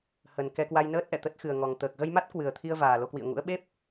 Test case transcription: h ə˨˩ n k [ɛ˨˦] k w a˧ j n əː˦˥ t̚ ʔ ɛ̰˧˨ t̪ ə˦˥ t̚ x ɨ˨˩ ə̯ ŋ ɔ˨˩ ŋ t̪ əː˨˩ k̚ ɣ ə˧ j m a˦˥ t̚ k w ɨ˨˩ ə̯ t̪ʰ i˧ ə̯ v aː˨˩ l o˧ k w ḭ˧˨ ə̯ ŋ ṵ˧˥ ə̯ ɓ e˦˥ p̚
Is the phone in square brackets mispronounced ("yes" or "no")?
yes